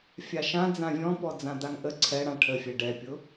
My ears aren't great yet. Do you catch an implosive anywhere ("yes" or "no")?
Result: no